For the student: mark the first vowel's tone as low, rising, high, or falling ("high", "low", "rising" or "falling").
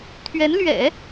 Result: rising